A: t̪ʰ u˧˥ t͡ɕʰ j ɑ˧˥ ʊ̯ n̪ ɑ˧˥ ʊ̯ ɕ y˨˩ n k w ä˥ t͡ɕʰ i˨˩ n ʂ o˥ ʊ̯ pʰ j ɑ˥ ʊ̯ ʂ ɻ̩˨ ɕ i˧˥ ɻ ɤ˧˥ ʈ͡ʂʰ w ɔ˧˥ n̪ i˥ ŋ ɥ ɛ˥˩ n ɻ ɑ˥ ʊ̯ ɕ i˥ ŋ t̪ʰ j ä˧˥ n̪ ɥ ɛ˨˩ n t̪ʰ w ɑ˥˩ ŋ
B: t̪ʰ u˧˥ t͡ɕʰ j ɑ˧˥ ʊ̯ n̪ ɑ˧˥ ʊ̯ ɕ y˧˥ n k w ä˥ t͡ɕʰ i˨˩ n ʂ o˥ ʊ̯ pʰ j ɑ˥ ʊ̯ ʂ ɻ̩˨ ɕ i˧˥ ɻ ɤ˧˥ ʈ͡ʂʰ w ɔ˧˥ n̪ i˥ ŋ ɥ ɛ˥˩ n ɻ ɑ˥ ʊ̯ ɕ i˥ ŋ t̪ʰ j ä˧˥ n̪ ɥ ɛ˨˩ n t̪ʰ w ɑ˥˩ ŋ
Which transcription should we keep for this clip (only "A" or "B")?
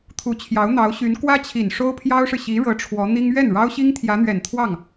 B